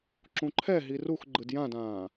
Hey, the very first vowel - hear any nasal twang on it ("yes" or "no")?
yes